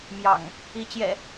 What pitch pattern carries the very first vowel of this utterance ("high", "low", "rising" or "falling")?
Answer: low